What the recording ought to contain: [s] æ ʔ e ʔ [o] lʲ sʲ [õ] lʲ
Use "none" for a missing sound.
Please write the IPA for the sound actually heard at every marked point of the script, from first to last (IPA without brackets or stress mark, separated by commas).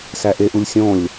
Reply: s, u, õ